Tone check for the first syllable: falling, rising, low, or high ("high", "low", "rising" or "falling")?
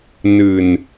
low